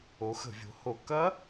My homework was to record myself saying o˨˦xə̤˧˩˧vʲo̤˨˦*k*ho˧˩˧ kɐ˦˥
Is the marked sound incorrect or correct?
incorrect